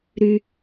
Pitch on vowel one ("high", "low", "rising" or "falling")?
high